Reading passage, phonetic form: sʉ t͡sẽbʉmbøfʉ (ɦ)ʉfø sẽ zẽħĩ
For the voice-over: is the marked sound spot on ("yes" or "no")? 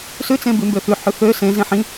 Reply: no